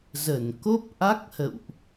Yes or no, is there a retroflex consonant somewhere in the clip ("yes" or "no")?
no